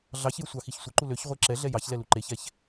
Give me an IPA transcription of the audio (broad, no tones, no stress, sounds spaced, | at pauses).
ɮ ɑ ç j ə sʷ ɑ x i ç sʷ ə ǃ u l ø ç ʁʷ e ǁ ɛ ɮ ɛ j ɑ ç l ɛ l u ǃ e ç ɛ ç